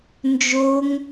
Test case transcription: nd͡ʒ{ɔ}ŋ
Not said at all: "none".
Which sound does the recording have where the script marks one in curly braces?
o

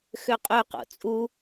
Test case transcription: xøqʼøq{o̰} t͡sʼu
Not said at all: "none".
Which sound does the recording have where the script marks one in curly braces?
o̰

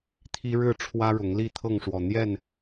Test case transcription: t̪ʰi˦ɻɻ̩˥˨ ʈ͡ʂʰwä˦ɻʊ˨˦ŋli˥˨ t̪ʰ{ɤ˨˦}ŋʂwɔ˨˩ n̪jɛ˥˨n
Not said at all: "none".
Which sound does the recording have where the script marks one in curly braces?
ɤ˥˨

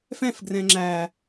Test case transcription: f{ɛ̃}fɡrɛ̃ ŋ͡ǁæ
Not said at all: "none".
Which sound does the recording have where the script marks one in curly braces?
ɛ̃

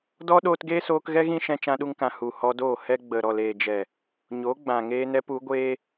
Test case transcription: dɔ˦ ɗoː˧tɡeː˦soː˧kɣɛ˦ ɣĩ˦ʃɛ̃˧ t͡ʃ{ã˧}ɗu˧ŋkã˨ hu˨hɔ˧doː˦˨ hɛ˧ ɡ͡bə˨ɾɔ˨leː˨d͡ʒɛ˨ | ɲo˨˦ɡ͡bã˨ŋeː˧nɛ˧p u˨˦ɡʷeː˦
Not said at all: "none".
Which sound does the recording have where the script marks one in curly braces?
ã˧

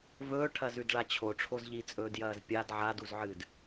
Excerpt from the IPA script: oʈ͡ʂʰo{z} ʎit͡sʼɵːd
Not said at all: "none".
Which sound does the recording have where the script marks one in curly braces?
z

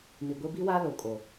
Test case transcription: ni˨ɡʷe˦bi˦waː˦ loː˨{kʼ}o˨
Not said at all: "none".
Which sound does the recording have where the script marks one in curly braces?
kʼ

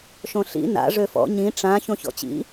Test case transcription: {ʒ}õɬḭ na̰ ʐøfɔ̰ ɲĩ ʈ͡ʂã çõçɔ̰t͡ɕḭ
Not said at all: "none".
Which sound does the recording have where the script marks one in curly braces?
ʃ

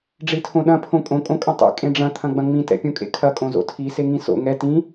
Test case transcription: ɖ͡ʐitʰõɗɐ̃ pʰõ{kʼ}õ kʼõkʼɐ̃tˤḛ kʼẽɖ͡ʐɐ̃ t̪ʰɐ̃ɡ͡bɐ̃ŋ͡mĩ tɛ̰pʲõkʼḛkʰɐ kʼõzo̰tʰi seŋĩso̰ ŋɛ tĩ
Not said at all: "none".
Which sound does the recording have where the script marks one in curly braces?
kʼ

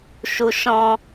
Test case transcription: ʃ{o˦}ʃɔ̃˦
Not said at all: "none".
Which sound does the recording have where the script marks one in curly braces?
u˦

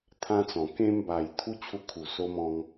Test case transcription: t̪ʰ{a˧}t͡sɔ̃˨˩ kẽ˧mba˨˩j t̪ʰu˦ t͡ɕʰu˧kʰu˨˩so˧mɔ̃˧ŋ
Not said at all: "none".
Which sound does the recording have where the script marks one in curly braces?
ã˧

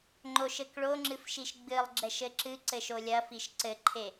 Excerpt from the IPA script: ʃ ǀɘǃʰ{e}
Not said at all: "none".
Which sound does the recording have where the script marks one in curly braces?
e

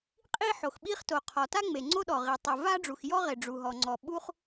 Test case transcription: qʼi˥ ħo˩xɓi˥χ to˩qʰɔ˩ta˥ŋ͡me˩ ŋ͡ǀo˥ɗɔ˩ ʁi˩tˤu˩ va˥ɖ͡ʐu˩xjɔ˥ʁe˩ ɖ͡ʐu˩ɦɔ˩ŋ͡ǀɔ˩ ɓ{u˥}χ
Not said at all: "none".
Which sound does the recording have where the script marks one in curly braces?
u˥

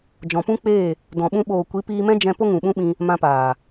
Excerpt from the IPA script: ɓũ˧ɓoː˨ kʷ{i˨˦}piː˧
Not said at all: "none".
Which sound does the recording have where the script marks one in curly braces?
i˨˦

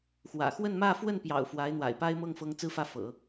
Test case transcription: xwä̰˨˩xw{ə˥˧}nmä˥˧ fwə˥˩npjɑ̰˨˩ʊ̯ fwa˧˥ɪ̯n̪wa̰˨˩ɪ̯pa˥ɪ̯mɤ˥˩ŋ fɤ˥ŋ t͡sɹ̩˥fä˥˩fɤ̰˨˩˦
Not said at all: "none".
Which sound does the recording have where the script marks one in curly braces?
ə˥˧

